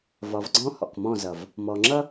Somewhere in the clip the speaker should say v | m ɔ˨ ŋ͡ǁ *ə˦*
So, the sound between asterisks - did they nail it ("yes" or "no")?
no